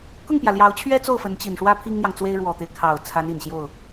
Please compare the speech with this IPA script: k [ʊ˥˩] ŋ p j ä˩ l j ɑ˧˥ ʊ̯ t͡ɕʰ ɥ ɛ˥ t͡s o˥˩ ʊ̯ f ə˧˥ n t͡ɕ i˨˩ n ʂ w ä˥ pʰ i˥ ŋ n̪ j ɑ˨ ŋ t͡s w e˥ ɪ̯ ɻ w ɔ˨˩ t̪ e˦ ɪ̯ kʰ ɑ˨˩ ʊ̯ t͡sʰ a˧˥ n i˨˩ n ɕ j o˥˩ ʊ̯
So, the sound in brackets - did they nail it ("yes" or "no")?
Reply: yes